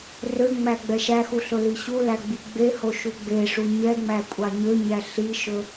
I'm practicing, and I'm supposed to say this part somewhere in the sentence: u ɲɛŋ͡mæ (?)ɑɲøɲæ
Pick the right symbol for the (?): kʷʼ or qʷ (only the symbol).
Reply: kʷʼ